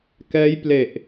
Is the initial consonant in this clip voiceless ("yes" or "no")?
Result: yes